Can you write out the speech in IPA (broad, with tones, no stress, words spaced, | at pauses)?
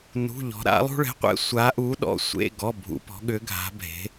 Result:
nṳ˧˥˧ʎɔ̤˧˥ ɾa̰˧˥lˠṳ˥ɭɛ̤˧˥˧qʷɛ̰˥ sʷa˧˥ʔu˧˥ɗɔ̰˧˥ sʷḛ˧˥˧ ɡɔ˧˥˧bʱṵ˧˥pɔ̤˧˥ ɠʏ˧˥ɡʱa̤˧˥bʱe̤˧˥